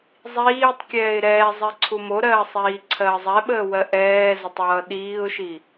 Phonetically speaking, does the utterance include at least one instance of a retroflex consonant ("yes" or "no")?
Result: no